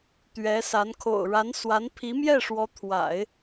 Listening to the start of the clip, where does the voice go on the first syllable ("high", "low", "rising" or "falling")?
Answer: rising